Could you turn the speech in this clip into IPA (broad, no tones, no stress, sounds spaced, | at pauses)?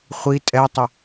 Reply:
χʷ i tʼ ɛ tˤ ɪ